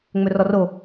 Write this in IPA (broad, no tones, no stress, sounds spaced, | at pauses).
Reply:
ŋ͡m ɵ r ɔ r o